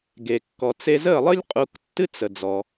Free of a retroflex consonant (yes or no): yes